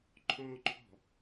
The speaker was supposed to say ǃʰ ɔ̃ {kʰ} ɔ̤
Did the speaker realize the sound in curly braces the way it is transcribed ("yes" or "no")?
no